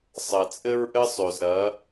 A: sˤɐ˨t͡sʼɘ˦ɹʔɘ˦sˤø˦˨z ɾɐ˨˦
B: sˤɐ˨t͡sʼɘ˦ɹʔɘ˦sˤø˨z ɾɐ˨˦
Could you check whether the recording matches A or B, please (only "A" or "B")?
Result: B